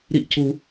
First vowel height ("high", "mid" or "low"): high